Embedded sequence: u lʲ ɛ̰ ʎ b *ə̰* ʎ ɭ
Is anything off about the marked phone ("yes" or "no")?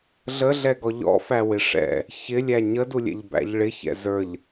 yes